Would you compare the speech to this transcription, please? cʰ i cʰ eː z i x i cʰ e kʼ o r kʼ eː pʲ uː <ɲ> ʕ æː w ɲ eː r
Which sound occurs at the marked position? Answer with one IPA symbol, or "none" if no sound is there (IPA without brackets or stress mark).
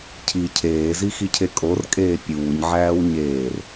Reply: ɲ